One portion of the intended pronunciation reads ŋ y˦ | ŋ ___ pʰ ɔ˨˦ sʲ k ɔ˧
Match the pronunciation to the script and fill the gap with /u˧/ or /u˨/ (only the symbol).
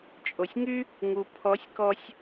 u˨